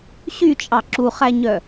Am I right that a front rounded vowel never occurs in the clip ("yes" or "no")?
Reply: no